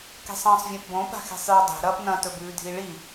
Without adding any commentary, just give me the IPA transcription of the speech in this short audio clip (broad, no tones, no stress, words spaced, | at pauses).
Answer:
ke̤sˤɐ̃ːsˤvʲõpbõ pa̤xe̤sˤjɵdˤe̤ ɾɐːpnɐ̃ tɵbʉːdʱiɭi